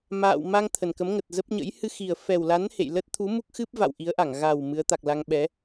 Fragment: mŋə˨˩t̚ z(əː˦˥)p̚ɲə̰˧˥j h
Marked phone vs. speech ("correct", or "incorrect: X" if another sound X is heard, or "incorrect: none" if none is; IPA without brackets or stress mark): incorrect: ə˦˥